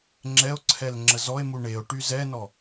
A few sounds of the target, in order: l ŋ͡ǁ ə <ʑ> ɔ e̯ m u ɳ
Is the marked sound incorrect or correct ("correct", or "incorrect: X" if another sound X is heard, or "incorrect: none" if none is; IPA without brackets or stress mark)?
incorrect: z